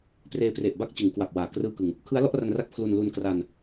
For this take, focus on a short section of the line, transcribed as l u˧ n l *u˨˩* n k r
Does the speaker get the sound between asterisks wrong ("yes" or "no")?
yes